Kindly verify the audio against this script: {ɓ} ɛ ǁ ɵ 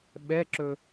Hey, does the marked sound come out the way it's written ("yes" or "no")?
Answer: yes